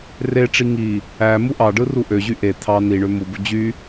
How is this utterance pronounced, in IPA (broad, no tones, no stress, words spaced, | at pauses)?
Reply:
reʈ͡ʂi ŋi | æ muʔɑɖɯ ruʔøʑy ʔe t̪ʰɑ niɳø mubu d͡ʑy